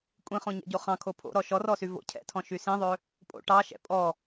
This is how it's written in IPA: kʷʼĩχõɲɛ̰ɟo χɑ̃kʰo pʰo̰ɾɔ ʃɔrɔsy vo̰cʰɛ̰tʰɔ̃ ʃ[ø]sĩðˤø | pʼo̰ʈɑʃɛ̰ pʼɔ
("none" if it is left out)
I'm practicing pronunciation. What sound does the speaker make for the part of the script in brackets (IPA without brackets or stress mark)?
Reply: y